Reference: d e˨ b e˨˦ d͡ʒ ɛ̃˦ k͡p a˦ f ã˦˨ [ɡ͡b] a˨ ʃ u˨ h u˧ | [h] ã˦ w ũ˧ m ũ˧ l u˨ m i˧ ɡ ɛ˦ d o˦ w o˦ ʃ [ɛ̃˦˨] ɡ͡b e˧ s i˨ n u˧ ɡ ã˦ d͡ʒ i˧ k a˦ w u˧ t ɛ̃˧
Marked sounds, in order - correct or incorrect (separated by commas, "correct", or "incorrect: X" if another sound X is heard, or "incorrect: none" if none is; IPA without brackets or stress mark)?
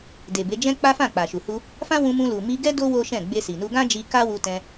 incorrect: k͡p, incorrect: f, correct